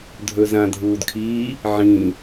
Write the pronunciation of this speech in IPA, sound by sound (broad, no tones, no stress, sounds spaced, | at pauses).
dʱ ɵ z ã dʱ uː d kʰ i | ʕ ĩ